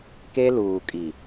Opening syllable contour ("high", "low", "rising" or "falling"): high